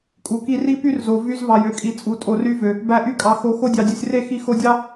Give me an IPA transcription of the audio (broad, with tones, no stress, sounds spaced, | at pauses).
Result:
kʼ u˨ k i˧ r i˦ p y˦ r z o˨ v y˧ z v ɑ˨ j ø˨ kʼ i˨ t͡sʼ u˨ tʼ o˨ r y˧ v ø˨ | b æ˧ ʔ y˧ kʼ ɑ˨ x o˨˦ x o˧ dʲ ɑ˨ dʲ ø˨ sʲ r e˦˨ x i˧ x o˧ dʲ ɑ˦